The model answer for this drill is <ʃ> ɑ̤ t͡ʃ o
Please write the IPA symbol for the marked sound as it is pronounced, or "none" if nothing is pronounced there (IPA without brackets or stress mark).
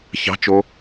ç